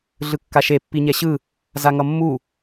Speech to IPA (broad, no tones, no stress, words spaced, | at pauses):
ɮɯkːaʃe pːiɲɛɕɯ | zaŋʌmːu